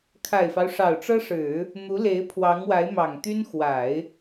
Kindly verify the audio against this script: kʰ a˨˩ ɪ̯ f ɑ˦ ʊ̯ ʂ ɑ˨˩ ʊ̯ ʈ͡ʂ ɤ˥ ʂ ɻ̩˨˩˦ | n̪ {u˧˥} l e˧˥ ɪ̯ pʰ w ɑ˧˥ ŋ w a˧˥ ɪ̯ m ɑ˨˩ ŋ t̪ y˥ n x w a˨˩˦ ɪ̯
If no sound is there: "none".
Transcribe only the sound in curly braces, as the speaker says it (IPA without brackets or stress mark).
u˧˥